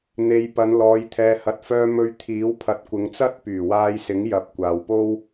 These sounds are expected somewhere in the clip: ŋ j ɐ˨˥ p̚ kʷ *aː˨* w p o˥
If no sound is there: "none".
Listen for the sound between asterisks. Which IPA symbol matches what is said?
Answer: aː˨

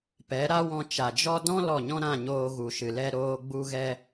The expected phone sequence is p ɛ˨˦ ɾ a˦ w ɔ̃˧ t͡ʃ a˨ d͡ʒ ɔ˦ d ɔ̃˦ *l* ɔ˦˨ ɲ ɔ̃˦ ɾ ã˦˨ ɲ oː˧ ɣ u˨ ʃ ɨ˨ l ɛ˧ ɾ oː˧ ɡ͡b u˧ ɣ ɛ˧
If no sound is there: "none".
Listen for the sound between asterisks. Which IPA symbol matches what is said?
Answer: l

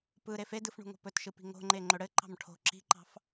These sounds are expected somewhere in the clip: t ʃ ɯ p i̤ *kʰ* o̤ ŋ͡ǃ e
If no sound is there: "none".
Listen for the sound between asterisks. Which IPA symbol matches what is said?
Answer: ŋ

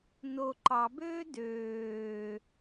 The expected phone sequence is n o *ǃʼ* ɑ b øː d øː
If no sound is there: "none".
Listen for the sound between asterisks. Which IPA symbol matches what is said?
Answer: ǃ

